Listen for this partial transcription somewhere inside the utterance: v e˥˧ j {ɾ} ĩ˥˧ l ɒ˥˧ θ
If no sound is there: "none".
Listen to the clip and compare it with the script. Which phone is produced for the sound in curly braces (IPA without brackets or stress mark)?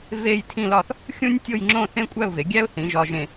tʰ